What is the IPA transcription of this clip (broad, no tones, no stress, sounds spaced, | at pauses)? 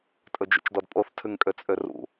tʼ ɵ d͡ʒ ṵ t͡ʃ d ɔ d pʼ o θ tʰ ʉ ŋ kʼ ø t͡sʼ ø r ṵ